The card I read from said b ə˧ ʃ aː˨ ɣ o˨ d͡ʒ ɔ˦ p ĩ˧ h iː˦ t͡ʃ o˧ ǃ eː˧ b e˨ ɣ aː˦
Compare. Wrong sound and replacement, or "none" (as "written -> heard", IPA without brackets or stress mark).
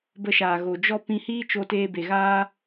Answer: ǃ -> t